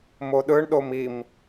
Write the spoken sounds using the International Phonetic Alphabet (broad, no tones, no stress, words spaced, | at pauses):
moɗɯɳɗom im